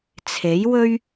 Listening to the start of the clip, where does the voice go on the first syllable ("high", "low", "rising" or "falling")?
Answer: rising